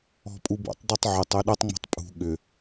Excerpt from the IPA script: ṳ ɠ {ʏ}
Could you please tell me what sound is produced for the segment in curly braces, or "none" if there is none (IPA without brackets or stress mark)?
ʏ